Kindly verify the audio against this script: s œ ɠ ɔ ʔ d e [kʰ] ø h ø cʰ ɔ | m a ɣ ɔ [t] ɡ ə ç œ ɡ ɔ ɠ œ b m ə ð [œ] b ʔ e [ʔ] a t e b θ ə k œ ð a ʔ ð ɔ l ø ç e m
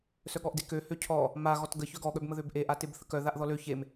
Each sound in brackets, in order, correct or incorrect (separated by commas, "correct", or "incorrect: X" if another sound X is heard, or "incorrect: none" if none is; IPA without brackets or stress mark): incorrect: k, correct, incorrect: ø, correct